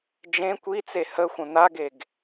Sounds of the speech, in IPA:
d͡ʒẽ kʷit͡se həxʷə̃ n̪aɡeɡ

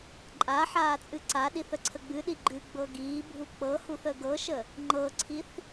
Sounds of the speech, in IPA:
ǃʼaħaː t͡sʼɨǀaɗiθ əǀʰəɡ͡bɨɗi ɡ͡ǃɨɡ͡bɤ ɡiːbʱu k͡pɤhuθ əɡɤʃə | ŋ͡ǃɤǀʰiθ

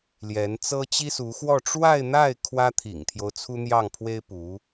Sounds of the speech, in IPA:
ljɛ˧˥nt͡sɤ˥ t͡ɕi˥su˧˥xwɔ˥˧ ʈ͡ʂwa˥˧ɪ̯n̪a˥˩ɪ̯ kʰwä˥t̪ʰḭ˨˩ŋt̪ʰjo˦ʊ̯ t͡sʰu˥n̪jɑ˥˩ŋpʰwe˥ɪ̯ pu˧˥

